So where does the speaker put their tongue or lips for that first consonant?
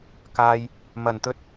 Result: velum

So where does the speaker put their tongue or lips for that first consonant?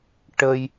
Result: retroflex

